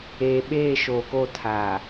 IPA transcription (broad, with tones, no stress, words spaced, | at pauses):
eː˨ ɓeː˦˨ ʃoː˨ko˦˨ tʰaː˨